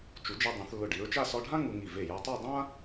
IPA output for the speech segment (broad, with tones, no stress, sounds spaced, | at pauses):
t͡ʃ u˩˧ d͡ʒ ɛ˧ dˤ ɛ̃˩˧ θ lː ʊ˧˩ ɖ i˩˧ ɹ t͡ʃ a˥˧ s ɔ˧ ɖʱ ã˥ ŋ u˧ ŋ i˧˩ v e˧˩ j a˧ tˤ a˥˧ dˤ ã˥